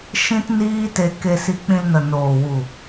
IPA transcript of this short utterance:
ʃ ĩ˦ t n iː˦ t e˧ k e˧ s i˧ k͡p ĩ˧ l n ə˨ n oː˨ w u˨

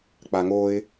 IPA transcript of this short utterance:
k͡p a ŋ o ɪ̯

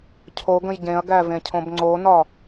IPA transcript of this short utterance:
cʰ o ɡ ə̃ j ɟ ẽ ɐ̯ ɡ æ v ẽ cʰ õ b ŋ͡ǀ o n ɒ

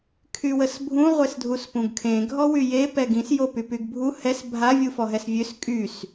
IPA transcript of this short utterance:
kʰ y w ə s bʱ ũ ʁʷ e s dʱ u s p ũ ɡ kʰ ẽ ɡʱ ɔ w y j e p ɛ ɡ ĩ s j o p y p y ɡ bʱ u h ɛ s bʱ a vʲ u f ɔ ɦ ɛ s vʲ ø s kʼ y s

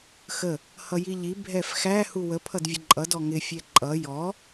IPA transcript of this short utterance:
x ə | h ʌ j i ʎ i bʱ ɛ f x æ h u w ə pʰ ʌ d vʲ ə ǃʼ ʌ d ɔ ŋ ɪ fʲ ɛ ǃʼ ʌ j ɔ

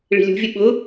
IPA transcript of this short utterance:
ɭ i̤ lʲ ṳ vʲ ʊ ɓ ʊ

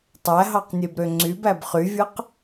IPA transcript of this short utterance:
tˤ æ ɦ ɑ q nʲ e b ɾ ø ŋ͡ǀ y b æ b χ y vʲ ɯ q

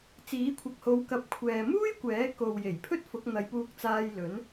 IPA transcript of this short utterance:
t͡s iː˨˥ kʷʰ ɐ˨ k̚ h o˨˧ w k ɐ˨˥ p̚ kʷʰ ɛː˨ m uː˥ j kʷ ɛː˨˥ k o˨ w j e˨˩ j pʰ ɵ˥ t̚ f ʊ˨˥ k̚ n̪ ɐ˨˧ j p uː˧ k̚ t͡s aː˧ j l ɵ˨˥ n

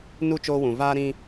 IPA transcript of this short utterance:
n u˦ t͡ʃ oː˦ w ũ˨ v aː˦ ɾ ĩ˦

